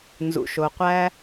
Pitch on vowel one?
low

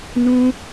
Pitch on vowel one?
high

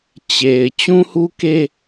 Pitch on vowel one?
low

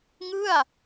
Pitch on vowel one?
falling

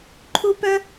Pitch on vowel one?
high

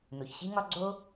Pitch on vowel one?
low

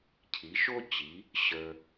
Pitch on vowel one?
rising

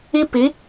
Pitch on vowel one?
high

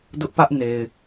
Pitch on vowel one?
high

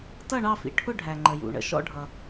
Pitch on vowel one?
falling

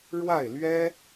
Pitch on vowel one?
falling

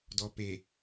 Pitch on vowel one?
low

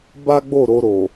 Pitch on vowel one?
high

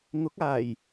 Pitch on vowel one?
rising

